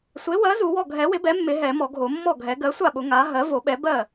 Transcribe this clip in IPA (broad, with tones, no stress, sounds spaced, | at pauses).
sʷ e˩˥ w ɜ˩˥ z u˨˩˦ w ɔ˥˩ ɡʱ ɛ˨˩˦ w ɪ˩˥ b ɛ˩˥ mː ɪ˨˩˦ ɦ ɛ˨˩˦ m ɔ˨˩˦ ɡʱ o˨˩˦ mː ɔ˥˩ ɡʱ ɛ˨˩˦ ɡ ɜ˩˥ sʷ a˥˩ ɓ ʊ˨˩˦ ŋ a˩˥ ɦ ɜ˩˥ v o˨˩˦ ɓ ɛ˩˥ b ɜ˥˩